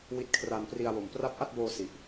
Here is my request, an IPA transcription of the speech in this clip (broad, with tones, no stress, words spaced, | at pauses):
wi˦˥t̚kʰra˧npri˧a̯wo˨˩m pra˦˥p̚ʔa˥˩t̚boː˧ si˨˩ʔ